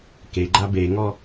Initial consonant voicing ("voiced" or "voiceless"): voiceless